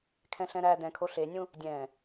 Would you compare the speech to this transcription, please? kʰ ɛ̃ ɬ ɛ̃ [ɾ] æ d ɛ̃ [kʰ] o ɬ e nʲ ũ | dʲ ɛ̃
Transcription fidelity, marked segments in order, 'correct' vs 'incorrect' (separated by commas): correct, correct